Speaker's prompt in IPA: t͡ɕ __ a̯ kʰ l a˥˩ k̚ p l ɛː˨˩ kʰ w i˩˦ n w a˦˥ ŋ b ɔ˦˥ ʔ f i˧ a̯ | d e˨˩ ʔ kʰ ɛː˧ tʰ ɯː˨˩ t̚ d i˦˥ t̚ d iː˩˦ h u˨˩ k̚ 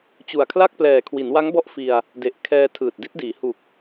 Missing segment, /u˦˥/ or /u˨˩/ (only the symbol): u˨˩